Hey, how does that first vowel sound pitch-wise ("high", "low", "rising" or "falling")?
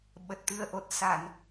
low